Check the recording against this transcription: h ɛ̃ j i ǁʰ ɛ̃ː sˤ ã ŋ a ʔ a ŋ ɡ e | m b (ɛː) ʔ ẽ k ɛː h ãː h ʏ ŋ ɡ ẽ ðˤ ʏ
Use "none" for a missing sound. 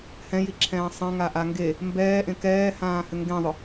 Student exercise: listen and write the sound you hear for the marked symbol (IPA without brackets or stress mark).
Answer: ɛː